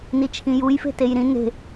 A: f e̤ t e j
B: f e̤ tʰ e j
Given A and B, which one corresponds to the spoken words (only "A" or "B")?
A